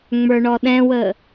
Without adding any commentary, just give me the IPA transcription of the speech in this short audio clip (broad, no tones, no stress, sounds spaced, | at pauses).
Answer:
ŋ͡m ə˞ ɳ ɔ ɗ ɛ̃ w ə